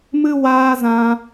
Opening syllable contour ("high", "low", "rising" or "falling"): high